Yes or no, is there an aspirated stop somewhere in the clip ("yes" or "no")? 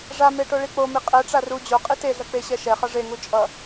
no